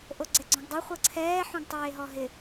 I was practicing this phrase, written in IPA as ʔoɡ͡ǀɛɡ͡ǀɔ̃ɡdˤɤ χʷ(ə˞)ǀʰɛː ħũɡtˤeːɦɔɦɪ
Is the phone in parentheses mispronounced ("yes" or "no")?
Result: yes